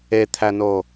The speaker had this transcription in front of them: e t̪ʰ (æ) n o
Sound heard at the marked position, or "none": æ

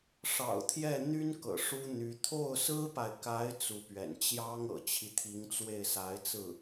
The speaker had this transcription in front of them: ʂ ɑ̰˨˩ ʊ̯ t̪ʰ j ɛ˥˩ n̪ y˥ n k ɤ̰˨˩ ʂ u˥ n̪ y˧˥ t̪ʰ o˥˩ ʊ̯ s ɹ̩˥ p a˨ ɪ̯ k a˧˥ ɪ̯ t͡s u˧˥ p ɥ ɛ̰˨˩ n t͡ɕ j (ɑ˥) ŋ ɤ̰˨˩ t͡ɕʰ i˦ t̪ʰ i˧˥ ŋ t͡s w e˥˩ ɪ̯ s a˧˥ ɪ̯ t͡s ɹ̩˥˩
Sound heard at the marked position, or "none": ɑ˥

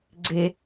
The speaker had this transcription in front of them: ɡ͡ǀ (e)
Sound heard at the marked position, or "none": e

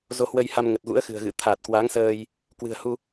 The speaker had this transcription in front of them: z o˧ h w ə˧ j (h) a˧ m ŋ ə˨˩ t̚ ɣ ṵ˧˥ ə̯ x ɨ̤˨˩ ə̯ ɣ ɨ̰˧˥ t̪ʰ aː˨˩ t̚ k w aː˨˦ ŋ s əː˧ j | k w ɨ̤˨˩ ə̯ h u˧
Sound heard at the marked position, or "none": h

